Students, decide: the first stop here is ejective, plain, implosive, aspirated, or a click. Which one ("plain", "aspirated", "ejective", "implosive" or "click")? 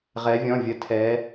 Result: aspirated